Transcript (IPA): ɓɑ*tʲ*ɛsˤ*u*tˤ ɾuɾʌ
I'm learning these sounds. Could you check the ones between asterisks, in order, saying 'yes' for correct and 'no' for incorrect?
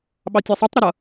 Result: yes, yes

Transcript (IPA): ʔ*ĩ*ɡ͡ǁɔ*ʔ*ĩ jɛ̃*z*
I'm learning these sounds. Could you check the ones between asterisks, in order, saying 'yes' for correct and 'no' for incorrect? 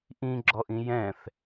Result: yes, yes, no

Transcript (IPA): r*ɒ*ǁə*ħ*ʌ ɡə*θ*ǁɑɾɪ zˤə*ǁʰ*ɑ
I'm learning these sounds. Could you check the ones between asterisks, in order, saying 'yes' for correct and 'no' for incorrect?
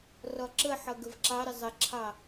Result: yes, yes, no, yes

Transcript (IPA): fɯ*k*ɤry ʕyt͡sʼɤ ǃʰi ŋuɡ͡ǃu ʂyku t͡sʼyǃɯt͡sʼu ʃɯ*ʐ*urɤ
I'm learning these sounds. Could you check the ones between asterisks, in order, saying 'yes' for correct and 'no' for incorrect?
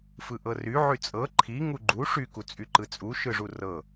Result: no, yes

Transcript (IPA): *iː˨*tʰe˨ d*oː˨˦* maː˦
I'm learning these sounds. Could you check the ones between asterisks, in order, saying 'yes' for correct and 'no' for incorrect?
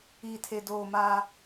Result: yes, no

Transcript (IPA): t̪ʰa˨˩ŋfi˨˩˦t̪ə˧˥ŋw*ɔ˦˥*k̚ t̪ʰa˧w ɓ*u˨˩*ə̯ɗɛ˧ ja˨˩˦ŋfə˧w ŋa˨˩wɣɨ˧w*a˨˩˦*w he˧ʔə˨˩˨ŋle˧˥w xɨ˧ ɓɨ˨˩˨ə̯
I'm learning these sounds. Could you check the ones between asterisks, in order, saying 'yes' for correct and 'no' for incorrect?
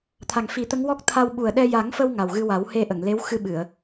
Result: yes, yes, yes

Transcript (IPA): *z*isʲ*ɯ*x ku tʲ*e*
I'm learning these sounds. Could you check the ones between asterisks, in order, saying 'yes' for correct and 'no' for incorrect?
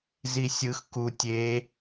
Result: yes, yes, yes

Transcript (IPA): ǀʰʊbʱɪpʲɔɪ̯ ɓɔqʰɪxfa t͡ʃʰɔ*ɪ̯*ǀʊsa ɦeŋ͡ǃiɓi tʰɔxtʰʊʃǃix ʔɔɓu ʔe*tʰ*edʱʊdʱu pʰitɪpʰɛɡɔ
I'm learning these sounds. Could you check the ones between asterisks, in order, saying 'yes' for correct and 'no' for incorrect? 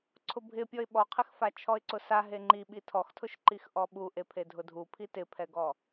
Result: yes, no

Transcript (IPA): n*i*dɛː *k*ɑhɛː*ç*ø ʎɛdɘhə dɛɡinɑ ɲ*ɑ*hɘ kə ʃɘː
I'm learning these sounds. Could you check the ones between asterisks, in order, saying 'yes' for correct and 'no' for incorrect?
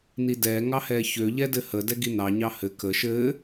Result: yes, no, yes, yes

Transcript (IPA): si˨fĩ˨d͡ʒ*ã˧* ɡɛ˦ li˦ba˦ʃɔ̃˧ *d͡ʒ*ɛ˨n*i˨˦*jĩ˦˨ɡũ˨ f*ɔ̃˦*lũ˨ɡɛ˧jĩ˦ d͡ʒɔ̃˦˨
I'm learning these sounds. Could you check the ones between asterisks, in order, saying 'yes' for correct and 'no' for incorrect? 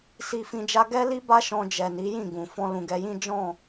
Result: no, yes, yes, no

